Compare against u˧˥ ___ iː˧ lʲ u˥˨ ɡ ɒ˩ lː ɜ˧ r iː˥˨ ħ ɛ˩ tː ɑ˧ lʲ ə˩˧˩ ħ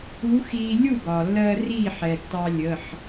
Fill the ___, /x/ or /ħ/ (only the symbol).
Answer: x